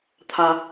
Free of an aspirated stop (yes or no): no